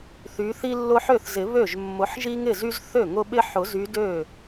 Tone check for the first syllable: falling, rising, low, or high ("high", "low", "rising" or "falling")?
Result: rising